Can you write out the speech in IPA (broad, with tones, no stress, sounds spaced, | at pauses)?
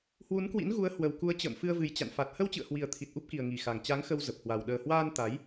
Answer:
h w u˨˦ n k w ḭ˧˥ n ɣ u˨˦ ə̯ h w ə˨˩ w k u˨˦ ə̯ t͡ɕ ə̰ː˧˨ m f ɨ˧ ə̯ v ɨ˨˩ j t͡ɕ a̰˧˨ n f a˨˩ t̚ h ə˧ w t͡ɕ ɨ̰˧˨ ə̯ h w i˨˩ ə̯ t̪ʰ i˨˩ t̚ ʔ u˦˥ p̚ k i˨˩ ə̯ ŋ i˨˩ x a˨˩ ŋ t͡ɕ a˨˦ ŋ x ə˧ w z ə˨˩ p̚ h w a˨˩ w ɗ əː˨˩ h w aː˧ n t̪ a˨˦ j